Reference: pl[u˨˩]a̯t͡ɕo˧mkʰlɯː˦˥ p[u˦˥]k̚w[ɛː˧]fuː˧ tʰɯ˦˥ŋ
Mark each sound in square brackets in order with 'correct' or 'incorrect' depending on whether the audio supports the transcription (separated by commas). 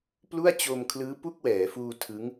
incorrect, incorrect, incorrect